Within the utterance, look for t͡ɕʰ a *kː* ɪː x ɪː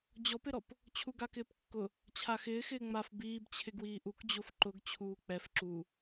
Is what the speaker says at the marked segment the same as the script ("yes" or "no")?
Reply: no